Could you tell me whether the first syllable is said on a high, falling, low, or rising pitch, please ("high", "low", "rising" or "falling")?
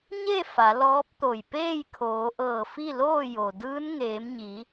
falling